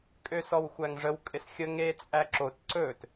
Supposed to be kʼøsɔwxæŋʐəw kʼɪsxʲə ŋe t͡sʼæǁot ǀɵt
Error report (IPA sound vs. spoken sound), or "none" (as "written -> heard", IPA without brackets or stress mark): x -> xʷ